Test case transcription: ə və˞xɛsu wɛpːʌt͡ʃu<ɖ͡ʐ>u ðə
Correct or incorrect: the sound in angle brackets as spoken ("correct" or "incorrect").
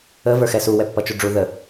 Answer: correct